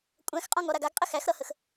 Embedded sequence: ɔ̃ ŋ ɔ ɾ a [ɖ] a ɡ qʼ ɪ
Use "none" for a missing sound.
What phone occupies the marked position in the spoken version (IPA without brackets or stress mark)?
ɡ